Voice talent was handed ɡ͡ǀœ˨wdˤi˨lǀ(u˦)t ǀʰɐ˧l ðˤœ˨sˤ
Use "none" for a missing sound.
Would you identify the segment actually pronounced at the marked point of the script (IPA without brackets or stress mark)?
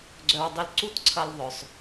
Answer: u˦˨